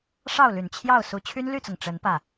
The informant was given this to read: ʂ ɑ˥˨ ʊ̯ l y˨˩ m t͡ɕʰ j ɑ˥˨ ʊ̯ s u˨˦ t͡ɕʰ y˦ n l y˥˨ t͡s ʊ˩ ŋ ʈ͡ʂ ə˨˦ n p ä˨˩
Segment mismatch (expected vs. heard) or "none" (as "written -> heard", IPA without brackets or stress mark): m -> n